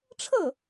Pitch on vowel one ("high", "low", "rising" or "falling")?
falling